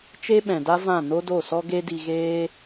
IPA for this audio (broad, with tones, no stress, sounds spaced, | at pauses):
t͡ʃ e˦ ɓ ɛ̃˨ d a˦ v ã˦˨ n o˦ d o˦˨ s ɔ˦ ɡ e˦ d i˧ ɣ eː˦